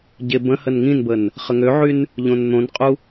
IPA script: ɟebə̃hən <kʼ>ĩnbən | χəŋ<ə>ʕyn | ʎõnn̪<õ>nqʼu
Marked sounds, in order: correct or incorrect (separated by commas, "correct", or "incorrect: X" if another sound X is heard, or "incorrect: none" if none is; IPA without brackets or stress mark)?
incorrect: ŋ, incorrect: ø, correct